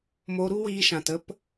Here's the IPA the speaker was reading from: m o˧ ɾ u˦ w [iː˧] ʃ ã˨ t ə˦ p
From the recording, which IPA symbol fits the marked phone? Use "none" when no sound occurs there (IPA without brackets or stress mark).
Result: iː˧